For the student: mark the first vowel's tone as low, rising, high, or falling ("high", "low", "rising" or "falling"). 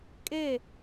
falling